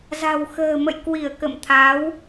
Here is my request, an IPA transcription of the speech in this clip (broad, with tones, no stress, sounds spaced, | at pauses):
z a̤˨˩ w x ə̤ː˨˩ m ə̰˧˨ j k w i˧˩ ə̯ k ə̰˧˨ m t̪ʰ a˨˦ w